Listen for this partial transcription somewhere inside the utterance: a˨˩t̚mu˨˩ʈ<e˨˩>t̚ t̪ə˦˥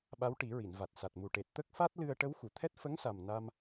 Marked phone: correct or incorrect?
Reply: correct